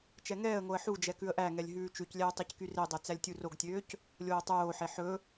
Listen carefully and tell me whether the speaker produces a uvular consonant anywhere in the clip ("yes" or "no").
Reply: no